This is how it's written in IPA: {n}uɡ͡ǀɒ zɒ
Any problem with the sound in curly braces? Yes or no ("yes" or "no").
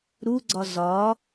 yes